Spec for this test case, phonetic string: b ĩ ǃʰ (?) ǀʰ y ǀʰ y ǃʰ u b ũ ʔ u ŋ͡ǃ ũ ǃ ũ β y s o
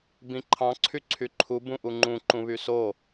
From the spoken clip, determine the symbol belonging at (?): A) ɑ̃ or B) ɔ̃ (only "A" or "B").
A